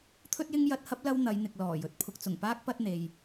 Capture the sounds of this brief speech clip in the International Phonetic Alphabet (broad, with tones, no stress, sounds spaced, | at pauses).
t̪ʰ ɵ˥ t̚ j ɪ˥ ŋ j ɐ˧ t̚ h ɐ˥ p̚ l ɐ˥ w n̪ ɐ˨˧ j n̪ ɪ˨ k̚ l ɔː˨˩ j ɵ˨˥ t̚ pʰ ʊ˨ k̚ t͡s ʊ˨˩ ŋ p aː˥ k̚ p ɐ˥ t̚ n̪ e˨ j